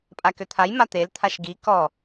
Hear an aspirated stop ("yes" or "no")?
yes